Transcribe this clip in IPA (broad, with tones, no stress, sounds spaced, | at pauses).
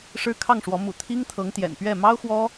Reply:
ʂ ɻ̩˥ kʰ ɑ˥˩ ŋ ʂ w ɔ˧˥ m ṵ˨˩ t̪ʰ i˥ ŋ t̪ʰ ɤ˧˥ ŋ t̪ j ɛ̰˨˩ n p ɥ ɛ˥˩ m ɑ˥ ʊ̯ x w ɔ˥